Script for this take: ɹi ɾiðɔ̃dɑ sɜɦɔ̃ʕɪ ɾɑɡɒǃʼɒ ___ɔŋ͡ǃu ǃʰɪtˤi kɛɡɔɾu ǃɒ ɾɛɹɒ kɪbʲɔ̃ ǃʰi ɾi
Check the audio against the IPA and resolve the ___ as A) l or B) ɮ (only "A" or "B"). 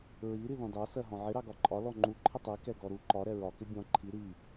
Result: A